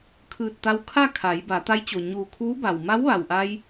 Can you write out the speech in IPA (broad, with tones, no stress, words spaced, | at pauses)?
kʰɯː˧˩t̚t̪a˧wkʰa˥˨ kʰa˩˧j ba˩˧t̪a˧˥jt͡ɕo˩ ɲuː˧˩kʰuː˧˥ba˩w ma˧˥wʋa˩wʔa˧j